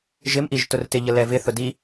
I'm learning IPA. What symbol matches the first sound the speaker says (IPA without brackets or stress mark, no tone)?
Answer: ʒ